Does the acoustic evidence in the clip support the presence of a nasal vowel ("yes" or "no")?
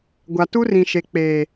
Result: yes